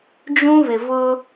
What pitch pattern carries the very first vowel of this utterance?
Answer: high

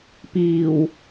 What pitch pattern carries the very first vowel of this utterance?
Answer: low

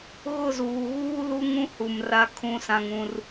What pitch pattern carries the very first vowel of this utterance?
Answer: falling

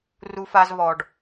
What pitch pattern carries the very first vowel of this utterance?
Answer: high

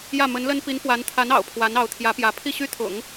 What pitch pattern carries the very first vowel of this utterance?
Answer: falling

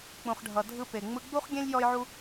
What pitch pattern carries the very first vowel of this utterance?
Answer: low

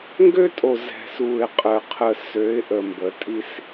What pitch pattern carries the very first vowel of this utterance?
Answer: high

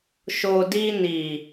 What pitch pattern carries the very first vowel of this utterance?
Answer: low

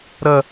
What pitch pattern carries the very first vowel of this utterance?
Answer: high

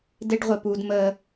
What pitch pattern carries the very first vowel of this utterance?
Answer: high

